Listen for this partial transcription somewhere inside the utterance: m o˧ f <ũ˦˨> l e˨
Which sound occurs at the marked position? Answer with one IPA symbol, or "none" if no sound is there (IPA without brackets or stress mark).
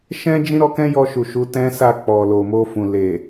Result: ũ˨